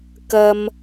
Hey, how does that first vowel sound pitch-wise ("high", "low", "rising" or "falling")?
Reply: low